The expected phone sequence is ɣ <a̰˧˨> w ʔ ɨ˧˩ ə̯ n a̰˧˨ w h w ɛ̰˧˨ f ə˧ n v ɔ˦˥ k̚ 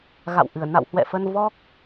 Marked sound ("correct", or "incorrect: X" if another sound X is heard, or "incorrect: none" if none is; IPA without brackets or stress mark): correct